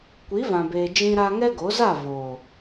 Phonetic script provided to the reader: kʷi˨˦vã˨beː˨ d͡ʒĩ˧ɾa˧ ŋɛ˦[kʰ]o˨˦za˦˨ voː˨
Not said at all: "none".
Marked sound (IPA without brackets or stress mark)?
ɡ